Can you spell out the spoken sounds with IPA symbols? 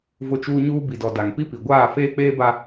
v ʊ˦˨ t͡ʃ uː˦ ɲ uː˦ b i˨ d ɔ˨ d a˨ ŋ p i˦ p i˨ ɡʷ aː˦˨ f eː˦ k͡p eː˦ b a˦

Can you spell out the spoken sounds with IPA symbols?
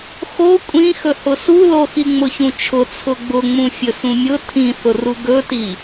x o kʷʼ ĩ x ɵ h ʊ s u l o x i ŋ͡m ʊ ç ũ t͡ʃʰ ʊ t͡sʰ ʊ ɡ͡b ʊ ŋ͡m ũ fʲ ɵ s ũ mʲ ʊ tʰ ĩ θ ʊ r u ɡ ɵ t i

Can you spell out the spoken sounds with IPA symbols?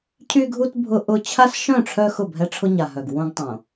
cʰ y˦ ɡʱ u˦ t bʱ ʊ˦ ʔ ʊ˦ t͡ɕʰ a˦ s ʃ œ̃˦˨ ʈ͡ʂʰ œ˦ x ʊ˦˨ bʱ ɛ˦ ʈ͡ʂʰ ʊ˦ ɲ a˨ ɦ œ˨ ɡ w õ˦ ɡ tˤ õ˨

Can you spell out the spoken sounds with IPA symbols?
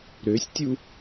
ɾ ø sʲ tʲ u

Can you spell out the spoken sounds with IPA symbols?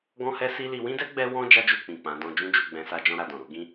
ɡ ɔ̃˧ h ɛ˧ s i˧ l i˧ w ĩ˦ d ɛ˦ ɡ͡b ɛ˦ w ɔ̃˦ d͡ʒ a˦ d͡ʒ u˦˨ k͡p ĩ˨ k͡p ã˨˦ d ɔ̃˧ d͡ʒ ũ˦ d͡ʒ u˦˨ ɡ͡b ɛ̃˧ s a˦ d͡ʒ ɔ̃˦ ɾ a˧ d ɔ̃˨ ɾ u˨˦ ɡ ĩ˦

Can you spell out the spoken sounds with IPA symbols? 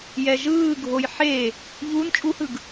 j ɛ ʒ ɯː ɡʱ o j ħ e | ʎ u n t͡ʃʼ u h ɯ ɡ

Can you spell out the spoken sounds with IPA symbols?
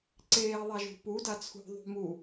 ǀ eː ðˤ a ʒ ṳ p u d a t͡sʰ ṳ ðˤ ṳ m u

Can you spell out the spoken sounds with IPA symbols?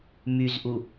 m y z ʔ u

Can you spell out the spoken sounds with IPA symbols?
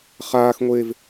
χ aː x ŋʷ eː v

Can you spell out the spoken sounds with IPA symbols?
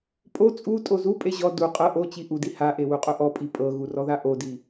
pʼ o t͡sʼ u tʼ o z u pʼ e ʑ ɔ d u qʼ ɤ ʔ o t͡ɕ i ʔ u d i h a ʔ e w u qʼ o ʔ ɔ pʼ i pʼ ɤ ɣ u r ɔ ð a ʔ o d i

